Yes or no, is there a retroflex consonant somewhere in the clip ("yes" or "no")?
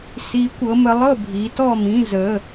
no